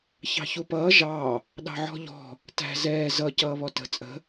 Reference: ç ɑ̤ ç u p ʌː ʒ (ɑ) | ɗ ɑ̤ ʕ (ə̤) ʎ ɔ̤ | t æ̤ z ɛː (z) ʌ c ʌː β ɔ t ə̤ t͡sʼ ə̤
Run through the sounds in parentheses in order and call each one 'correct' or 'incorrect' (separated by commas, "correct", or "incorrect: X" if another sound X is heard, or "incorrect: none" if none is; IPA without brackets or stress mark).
correct, incorrect: ɔ̤, correct